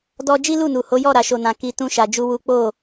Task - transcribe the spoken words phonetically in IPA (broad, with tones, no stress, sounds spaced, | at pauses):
d ɔ˧ d͡ʒ i˦ l u˦˨ n u˨ h o˨˦ j ɔ˦˨ ɾ a˨ ʃ o˨ n ã˨ k i˧ t ũ˦ ʃ a˧ d͡ʒ u˦ w u˦ k͡p o˦˨